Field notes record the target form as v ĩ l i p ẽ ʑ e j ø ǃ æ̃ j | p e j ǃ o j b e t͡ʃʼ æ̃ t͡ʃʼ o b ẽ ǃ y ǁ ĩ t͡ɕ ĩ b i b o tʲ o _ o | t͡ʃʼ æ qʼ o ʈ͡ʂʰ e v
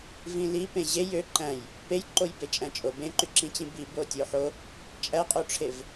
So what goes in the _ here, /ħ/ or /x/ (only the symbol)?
ħ